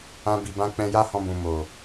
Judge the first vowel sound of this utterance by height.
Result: low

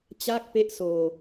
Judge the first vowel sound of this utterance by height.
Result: low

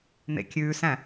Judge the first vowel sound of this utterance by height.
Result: mid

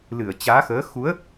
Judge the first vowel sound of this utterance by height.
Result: high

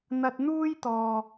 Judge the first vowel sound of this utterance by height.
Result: low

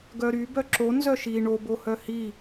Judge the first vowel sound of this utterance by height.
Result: mid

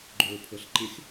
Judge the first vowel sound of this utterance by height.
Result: mid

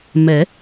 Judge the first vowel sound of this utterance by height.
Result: mid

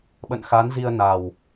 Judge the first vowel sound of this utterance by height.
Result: mid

